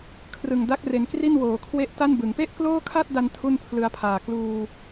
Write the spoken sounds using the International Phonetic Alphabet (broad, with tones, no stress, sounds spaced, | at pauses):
kʰ r ɯ˨˩ ŋ d a˦˥ k̚ r e˩˦ n k r i˥˩ n w oː˩˦ kʰ w e˦˥ ʔ t a˥˩ n b ɯ˩˦ ŋ p e˥˩ ʔ k l oː˥˩ kʰ a˥˩ t̚ d a˧ n tʰ u˥˩ n pʰ l ɯ˧ a̯ pʰ aː˨˩ k l uː˧